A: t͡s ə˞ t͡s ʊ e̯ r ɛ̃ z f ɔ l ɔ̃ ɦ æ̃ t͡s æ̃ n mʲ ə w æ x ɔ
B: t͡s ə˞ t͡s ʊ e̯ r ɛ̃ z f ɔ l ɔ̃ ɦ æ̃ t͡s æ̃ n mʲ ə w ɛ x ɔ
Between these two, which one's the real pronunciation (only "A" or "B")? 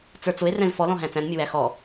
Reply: A